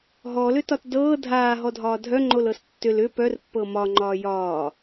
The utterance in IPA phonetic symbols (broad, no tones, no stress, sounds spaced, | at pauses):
ɦ ɔ l ʏ t ɒ t d ɤː dʱ aː ɦ ɔ dʱ ɒː dʱ œ ŋ͡ǃ o l ɤ s tː ʏ l ʏ p œ r pː ɤ m ɒ ŋ͡ǃ ɒː j ɒː